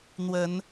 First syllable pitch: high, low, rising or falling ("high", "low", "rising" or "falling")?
rising